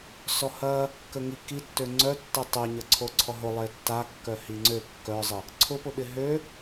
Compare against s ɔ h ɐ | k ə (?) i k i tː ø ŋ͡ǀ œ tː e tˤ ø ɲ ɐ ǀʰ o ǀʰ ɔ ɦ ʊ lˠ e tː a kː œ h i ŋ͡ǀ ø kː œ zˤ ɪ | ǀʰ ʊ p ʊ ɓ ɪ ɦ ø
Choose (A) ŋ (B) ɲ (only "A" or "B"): A